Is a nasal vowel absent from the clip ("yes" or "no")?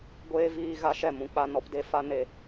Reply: no